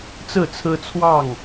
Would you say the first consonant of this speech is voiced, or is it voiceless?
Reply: voiceless